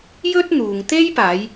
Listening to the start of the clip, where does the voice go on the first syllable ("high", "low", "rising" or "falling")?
high